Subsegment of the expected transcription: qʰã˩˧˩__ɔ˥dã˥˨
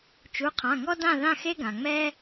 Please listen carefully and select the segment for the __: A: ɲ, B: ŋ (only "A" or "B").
B